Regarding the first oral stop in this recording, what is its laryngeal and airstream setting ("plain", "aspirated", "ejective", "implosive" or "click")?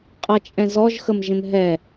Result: ejective